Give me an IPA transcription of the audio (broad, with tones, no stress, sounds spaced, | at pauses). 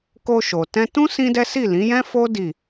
k o˧ ʃ o˨ t ɛ̃˧ t ũ˦ s ĩ˦ d ɛ˦ s i˦˨ l ĩ˨˦ j ɛ̃˦ f o˦ d i˦˨